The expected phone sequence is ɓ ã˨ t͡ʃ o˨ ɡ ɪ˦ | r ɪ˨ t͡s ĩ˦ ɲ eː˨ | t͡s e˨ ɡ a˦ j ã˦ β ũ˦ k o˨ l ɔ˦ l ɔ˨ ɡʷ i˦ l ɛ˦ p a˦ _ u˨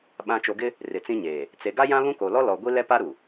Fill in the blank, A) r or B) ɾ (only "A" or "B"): B